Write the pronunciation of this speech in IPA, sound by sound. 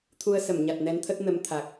t̪ʰ u˧ ə̯ s ə˧˩ m ɲ a˨˩ t̚ n ɛ˨˦ n t̪ʰ ə˦˥ t̚ n ə˧ m t̪ʰ a˨˩ k̚

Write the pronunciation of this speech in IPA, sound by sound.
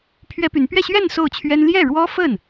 pʰ ɥ ɛ˥ p y˧˥ n p ɥ ɛ˥˧ ɕ ɥ ɛ˥˧ n s o˥˩ ʊ̯ t͡ɕʰ ɥ ɛ˥ n l j ɛ˥˩ ɻ w ɔ˥ f ə˥˩ n

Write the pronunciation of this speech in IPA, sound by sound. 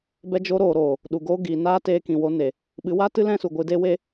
b ɛ˧ d͡ʒ o˧ ɾ oː˨ ɾ oː˨ | ɗ u˨ ɡ oː˧ ɡ iː˨ n aː˦ t eː˧ k ĩ˨ w o˧ n e˨ | ɓ ɨ˨˦ w a˦ t ɨ˦ l ɛ̃˦ s u˨ ɡʷ ɨ˧ d e˦ w e˧

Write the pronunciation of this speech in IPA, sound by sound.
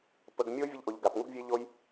p ə˩˧ ɡ mʲ o˧˥ vʲ ɘ˧ ʎ ʔ o˩ ʎ ɡ a˩ p ŋ u˧ ɡ vʲ e˧ ʎ o˧ j

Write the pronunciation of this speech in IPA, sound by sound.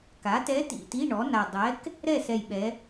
k a˩˥ t ɛ˧˥ t ḭ˨˩ t i˧˥˧ ɳ ɔ˩˥ n a˨˩ dˤ ɛ˩˥ k | ɾ ɛ˥˨ s ɛ˨˩ j ɓ ɛ˩˧

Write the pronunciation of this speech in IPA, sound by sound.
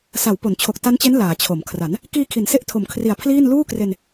s a˩˦ w p o˩˦ n t͡ɕʰ o˨˩ k̚ t a˦˥ n t͡ɕ e˦˥ n l aː˩˦ t͡ɕʰ o˩˦ m kʰ r a˩˦ n | k iː˧ kʰ i˩˦ n s e˦˥ ʔ tʰ o˩˦ m kʰ r i˨˩ a̯ pʰ l iː˥˩ n l uː˥˩ k r e˧ n

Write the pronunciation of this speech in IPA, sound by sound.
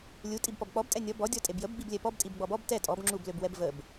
lʲ u tʼ i b p ɔ b k͡p ɔ b tʼ ɛ nʲ ɔ b ɔ dʲ ɔ tʼ e b j ə b ɡ͡b i b lʲ ɛ p ɔ b tʼ i b ɡ͡b ɔ b ɔ b t ɛ tʼ ɔ b ŋ͡ǁ u b l ø b w ɛ b v ə b

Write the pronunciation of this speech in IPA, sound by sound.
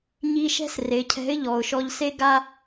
ɲ i˧ ʃ ɛ̤˥ s r e˩˧ cʰ ɛ̤˧˥ ɪ̯ ʎ ɔ˩ ʊ̯ ʃ ɔ˧ ʎ s e˥ ɡ a˥

